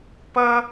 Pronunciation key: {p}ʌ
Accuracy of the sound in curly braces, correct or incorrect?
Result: correct